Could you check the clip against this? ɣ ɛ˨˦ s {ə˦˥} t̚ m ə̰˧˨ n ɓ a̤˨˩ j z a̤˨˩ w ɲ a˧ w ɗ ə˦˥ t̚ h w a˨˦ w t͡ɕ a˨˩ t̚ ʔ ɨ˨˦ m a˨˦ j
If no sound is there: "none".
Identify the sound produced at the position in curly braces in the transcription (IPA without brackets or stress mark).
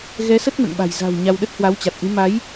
ə˦˥